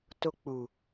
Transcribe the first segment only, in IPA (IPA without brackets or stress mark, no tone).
t